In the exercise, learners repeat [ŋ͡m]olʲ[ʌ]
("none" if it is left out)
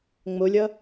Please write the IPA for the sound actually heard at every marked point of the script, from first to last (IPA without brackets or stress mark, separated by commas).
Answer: ŋ͡m, ʌ